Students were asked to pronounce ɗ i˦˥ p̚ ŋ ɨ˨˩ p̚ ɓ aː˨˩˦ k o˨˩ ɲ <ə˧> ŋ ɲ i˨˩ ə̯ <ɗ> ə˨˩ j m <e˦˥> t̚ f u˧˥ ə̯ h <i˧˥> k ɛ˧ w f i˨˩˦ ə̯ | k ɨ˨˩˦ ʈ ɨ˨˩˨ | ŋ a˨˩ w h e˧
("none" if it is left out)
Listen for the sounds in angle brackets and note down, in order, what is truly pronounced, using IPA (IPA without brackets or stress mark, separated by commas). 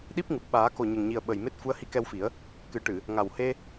ə˨˩, ɓ, e˦˥, i˧˥